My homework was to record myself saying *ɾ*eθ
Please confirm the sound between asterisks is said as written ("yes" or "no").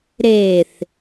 yes